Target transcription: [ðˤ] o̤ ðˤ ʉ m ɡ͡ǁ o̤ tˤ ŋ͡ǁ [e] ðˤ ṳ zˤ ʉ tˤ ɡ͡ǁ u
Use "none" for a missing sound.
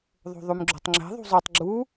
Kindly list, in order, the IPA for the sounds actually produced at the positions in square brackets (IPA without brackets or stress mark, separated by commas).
ðˤ, e̤